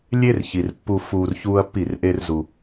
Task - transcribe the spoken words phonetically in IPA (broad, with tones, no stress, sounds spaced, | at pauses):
lʲ e˦ r ç i˨ r pː u˧ f uː˧ r ç uː˦ ɐ̯ pː i˦˨ r ʔ e˦ r z u˧